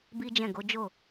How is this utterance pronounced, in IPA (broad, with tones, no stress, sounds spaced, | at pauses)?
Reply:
b i˦ d͡ʒ ɛ̃˦˨ ɡ o˨˦ d͡ʒ o˦˨